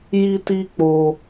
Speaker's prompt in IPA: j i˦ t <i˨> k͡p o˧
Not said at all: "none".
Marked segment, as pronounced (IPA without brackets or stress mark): i˦